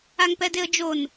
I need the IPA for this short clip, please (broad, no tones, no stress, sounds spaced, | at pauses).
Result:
a ŋ p ɛ d e ə̯ d͡ʒ o n